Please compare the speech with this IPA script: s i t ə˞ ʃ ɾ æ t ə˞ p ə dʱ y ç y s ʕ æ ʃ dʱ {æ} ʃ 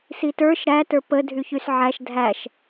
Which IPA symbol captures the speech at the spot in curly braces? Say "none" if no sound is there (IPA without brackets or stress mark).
æ